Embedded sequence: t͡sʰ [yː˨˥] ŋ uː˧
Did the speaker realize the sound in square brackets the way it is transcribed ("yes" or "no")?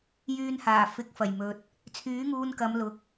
yes